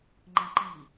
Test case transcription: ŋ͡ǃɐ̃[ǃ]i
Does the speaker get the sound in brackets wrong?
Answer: no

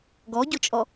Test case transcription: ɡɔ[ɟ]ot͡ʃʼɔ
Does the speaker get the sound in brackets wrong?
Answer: no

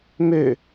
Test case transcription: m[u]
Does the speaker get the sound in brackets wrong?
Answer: yes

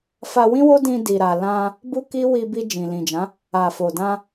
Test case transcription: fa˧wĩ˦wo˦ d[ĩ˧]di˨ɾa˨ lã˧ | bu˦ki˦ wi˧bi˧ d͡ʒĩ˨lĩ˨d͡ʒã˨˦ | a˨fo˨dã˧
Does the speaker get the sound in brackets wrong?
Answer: no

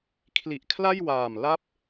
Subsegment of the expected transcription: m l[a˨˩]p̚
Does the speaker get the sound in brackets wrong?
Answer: yes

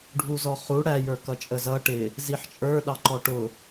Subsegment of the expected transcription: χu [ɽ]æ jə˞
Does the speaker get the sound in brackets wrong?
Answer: no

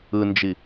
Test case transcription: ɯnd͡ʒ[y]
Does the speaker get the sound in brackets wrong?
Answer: yes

